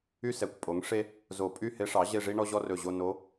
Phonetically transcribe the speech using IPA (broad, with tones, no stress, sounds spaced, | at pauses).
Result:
y˥ s ɛ˩˥ kʷ pʼ o˩˥ ŋ ʂ e˥ | z o˧˩˧ pʼ y˥˧ h e˧˥ ʂ ɑ˩˥ ʑ e˥˧ ʐ i˥ ɳ ɔ˥ ʑ ɔ˥ r ɵ˧˩ ʑ o˥˧ n o˧˥